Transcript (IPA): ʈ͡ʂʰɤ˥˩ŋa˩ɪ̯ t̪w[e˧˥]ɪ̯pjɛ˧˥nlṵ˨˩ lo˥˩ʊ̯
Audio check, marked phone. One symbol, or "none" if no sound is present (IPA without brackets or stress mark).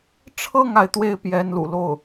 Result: e˥